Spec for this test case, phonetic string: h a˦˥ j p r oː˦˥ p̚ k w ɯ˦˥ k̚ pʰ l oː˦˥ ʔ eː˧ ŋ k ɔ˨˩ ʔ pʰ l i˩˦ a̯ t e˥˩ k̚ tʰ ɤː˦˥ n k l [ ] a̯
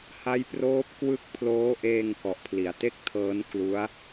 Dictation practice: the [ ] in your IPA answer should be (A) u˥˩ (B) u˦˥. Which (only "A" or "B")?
B